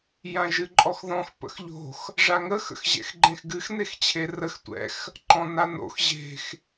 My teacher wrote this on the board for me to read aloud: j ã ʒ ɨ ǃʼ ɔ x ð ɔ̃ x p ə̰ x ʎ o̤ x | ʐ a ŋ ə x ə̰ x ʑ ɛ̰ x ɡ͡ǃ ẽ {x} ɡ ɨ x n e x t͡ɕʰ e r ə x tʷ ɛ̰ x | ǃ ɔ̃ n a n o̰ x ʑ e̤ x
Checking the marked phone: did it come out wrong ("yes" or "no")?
no